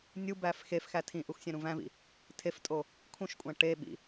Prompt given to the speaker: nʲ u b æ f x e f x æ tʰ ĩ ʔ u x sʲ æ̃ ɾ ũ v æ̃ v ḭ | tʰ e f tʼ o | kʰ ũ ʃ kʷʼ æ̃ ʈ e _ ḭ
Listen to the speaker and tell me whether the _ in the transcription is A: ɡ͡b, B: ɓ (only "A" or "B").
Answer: B